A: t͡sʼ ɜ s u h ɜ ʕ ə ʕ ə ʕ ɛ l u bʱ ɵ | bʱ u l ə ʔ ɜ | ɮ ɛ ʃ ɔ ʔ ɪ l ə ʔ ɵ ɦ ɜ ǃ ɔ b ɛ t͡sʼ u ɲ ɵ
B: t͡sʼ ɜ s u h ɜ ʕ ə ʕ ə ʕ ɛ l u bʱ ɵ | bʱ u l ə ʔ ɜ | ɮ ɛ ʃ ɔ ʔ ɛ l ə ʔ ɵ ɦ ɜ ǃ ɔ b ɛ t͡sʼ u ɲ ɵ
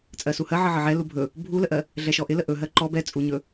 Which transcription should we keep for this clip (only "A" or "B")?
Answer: A